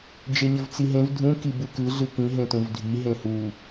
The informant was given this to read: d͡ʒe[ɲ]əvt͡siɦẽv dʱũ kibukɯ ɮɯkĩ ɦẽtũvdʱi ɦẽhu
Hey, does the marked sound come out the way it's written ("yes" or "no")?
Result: yes